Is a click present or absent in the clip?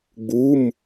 absent